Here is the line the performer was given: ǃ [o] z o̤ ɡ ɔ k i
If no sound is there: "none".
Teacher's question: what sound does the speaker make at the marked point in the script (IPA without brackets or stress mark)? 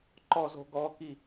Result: ɔ